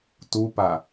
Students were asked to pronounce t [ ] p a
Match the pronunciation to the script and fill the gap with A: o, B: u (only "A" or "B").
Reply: B